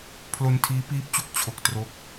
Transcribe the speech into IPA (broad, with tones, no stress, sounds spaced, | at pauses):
pʰ l o˧ n tʰ iː˦˥ p iː˦˥ p̚ t͡ɕ u˦˥ k̚ t͡ɕʰ o˨˩ k̚ t r o˥˩ k̚